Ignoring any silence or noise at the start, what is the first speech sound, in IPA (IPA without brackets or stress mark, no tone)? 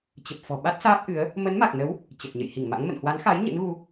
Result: t͡ɕ